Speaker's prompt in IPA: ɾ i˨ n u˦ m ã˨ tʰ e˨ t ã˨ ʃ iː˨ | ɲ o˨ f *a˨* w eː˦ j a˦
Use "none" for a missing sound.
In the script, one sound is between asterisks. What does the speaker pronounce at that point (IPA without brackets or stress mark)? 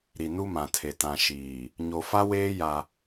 a˦